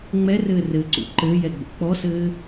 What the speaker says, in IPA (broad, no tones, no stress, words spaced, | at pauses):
ŋ͡mɛrɘː rɘǀṵ ǃɘːjɛɡ͡bo̰ k͡pɔsɘː